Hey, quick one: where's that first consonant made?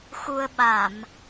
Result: velum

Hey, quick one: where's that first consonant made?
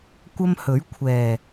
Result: velum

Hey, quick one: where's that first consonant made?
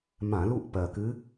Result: lips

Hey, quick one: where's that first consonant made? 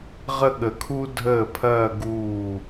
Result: uvula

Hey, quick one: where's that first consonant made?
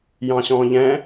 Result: palate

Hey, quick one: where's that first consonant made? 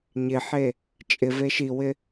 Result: palate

